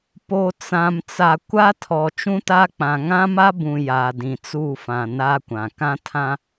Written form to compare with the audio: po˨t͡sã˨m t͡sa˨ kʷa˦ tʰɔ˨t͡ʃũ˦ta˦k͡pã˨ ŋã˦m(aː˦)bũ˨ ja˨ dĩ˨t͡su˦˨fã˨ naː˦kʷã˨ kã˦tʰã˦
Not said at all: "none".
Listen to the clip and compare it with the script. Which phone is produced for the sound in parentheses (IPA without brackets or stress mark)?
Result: a˦